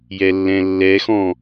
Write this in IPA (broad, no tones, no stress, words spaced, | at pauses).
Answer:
jɛlːɛ̃lːɛxɔ̃